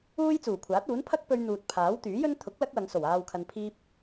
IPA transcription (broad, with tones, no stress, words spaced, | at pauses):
uː˥j t͡suː˨˩kʷʰaː˨˥t̚uː˨˥n pʰɐ˥k̚pɵ˧ɥ n̪uː˨t̚pʰaː˨˥wt̪yː˨˥jɵ˥n t̪ʰʊ˨˥k̚ lɐ˥k̚wɐ˨˧ŋso˨˩w aː˧wkʰɐ˧npʰiː˥p̚